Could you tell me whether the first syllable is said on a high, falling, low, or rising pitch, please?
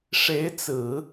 rising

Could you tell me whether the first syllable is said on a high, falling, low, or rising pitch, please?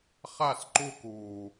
falling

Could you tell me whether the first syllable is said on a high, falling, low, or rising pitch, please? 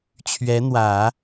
rising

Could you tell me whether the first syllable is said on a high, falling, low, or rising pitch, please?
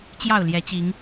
falling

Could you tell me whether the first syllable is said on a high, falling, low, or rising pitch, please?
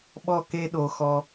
falling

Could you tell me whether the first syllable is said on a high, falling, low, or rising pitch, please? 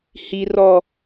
low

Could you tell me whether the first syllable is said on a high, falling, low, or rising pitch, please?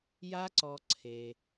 high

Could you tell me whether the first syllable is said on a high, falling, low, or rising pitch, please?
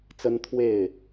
high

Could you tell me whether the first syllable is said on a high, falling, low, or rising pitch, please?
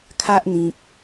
high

